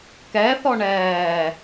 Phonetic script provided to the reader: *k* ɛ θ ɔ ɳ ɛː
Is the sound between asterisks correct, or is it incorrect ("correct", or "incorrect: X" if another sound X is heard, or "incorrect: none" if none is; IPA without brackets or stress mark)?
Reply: correct